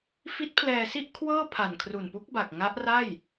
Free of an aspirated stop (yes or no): no